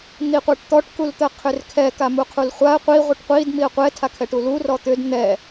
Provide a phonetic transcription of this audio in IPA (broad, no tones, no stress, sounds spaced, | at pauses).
n̪ i qʷ a ʈ t̪ ɔ ʈ k u l t̪ ə qʰ ʏ r kʰ ɛ k a m u qʰ u l χʷ a ə̯ qʷ i ʁʷ ə ʈ qʷ i d m i ə̯ qʷ ɛ tʰ a kʰ ɛ ʈ u l u r ɔ t̪ ʏ d n̪ ɛ